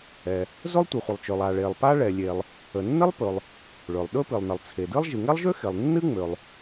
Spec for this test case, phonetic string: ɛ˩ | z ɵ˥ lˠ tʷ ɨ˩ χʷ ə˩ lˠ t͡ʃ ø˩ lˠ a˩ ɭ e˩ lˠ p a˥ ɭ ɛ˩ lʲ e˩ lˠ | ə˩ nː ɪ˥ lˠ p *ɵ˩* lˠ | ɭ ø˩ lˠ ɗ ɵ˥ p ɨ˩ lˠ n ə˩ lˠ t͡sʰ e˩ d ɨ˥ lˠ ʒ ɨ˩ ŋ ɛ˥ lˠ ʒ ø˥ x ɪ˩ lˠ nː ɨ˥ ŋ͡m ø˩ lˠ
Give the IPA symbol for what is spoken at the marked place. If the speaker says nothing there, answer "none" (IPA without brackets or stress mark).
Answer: ɵ˩